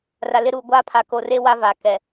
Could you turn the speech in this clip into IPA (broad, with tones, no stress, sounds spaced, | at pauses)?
r a˨ l ɪ˦ ɾ uː˨ ɡʷ aː˦ pʰ a˨ k o˨ r e˦ w a˦ v aː˨ k ɛ˨